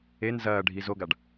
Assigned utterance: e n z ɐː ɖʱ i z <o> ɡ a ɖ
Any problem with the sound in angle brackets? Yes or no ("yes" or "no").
no